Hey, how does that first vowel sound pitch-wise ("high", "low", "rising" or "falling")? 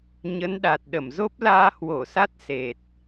rising